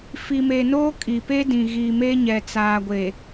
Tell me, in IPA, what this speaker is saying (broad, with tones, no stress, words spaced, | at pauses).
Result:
fi˨me˨noː˦ kʼi˨pe˦dĩ˨ ɣi˨ me˦ɲɛ˨t͡saː˨ɡʷe˨